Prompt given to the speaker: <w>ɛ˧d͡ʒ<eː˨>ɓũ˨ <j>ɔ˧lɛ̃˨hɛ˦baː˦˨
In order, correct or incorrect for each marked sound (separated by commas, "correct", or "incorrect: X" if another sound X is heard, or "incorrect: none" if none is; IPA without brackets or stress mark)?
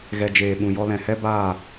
incorrect: ɣ, correct, correct